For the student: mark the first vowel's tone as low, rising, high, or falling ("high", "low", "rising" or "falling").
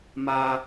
high